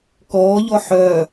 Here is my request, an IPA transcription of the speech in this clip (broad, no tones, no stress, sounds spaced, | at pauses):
k ɔː ʎ ɔ ħ œ